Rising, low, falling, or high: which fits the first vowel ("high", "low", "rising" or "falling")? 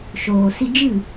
low